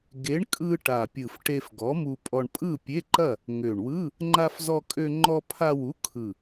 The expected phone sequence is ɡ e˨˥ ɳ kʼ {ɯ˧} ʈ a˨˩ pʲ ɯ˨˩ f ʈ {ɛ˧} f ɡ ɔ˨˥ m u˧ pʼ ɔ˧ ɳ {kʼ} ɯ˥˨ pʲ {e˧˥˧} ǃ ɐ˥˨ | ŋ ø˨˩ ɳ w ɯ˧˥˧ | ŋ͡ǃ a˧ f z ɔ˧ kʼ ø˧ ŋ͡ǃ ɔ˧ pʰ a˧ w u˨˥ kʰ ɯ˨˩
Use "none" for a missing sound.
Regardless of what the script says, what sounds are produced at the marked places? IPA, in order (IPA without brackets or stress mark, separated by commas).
ɯ˧, e˧, pʼ, e˧˥˧